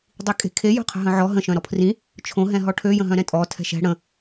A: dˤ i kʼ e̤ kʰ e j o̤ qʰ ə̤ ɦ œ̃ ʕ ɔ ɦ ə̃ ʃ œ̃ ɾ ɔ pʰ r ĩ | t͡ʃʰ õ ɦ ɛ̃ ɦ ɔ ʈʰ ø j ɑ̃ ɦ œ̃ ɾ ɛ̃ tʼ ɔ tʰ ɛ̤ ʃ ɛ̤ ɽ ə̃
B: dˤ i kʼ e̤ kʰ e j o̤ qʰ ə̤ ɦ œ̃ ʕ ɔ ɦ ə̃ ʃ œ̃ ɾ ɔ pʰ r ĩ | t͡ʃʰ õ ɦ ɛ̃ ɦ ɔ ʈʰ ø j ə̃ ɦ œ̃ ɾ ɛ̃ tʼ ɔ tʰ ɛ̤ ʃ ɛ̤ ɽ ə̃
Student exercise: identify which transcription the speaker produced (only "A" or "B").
B